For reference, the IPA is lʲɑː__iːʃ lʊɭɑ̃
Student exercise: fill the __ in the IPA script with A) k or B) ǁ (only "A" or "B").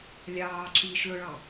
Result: B